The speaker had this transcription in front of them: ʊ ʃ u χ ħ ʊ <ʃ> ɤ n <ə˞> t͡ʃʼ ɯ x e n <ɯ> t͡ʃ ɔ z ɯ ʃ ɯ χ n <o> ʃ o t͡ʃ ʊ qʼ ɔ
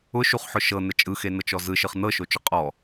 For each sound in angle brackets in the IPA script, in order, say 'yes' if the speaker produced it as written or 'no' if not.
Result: yes, no, no, no

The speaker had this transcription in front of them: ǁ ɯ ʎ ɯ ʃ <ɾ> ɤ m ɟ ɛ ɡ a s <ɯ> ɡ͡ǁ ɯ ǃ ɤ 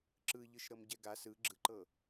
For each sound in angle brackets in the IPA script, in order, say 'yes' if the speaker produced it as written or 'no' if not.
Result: yes, yes

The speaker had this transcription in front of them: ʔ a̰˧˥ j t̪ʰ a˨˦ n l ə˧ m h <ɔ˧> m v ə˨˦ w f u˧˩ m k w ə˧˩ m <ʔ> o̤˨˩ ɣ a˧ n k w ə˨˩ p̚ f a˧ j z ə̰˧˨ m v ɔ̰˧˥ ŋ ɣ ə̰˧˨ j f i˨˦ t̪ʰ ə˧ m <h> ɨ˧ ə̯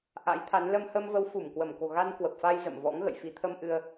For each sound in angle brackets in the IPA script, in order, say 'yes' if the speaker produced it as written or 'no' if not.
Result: no, no, no

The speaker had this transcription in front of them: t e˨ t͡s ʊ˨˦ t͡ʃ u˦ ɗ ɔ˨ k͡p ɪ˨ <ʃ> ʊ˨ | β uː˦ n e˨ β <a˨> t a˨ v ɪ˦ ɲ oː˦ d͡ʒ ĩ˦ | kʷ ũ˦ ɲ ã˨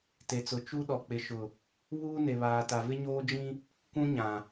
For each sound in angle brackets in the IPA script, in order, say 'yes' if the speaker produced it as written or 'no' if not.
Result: yes, no

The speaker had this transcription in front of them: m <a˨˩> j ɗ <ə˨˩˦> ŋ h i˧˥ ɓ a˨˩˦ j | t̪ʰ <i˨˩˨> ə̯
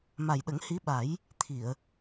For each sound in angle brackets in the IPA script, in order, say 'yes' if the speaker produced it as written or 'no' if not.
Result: yes, yes, yes

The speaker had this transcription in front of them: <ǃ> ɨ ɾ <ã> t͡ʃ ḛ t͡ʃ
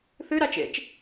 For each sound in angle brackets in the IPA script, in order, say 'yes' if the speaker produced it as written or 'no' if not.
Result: no, no

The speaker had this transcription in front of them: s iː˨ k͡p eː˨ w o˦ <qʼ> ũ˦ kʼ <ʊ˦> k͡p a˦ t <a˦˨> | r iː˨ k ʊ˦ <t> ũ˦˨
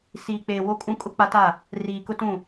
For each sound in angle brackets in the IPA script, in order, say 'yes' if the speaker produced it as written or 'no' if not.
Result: no, yes, yes, yes

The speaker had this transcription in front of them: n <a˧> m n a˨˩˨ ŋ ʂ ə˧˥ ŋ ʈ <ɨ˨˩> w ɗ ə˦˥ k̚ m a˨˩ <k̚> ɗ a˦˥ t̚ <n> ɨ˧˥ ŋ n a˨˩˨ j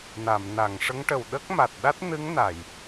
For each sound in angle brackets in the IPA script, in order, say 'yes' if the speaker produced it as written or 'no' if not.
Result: no, no, no, yes

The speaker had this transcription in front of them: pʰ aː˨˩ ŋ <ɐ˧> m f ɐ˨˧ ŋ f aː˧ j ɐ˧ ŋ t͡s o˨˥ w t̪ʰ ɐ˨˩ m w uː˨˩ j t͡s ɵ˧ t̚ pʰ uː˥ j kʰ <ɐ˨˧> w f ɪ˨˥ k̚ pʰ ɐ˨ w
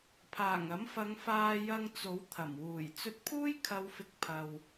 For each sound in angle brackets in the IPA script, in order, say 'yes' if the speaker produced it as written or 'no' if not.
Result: no, yes

